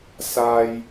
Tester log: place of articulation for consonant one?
alveolar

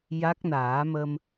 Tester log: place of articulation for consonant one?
palatal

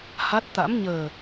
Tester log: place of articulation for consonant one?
glottal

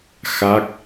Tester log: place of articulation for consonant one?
velar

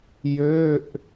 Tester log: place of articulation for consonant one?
palatal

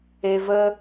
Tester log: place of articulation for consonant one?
labial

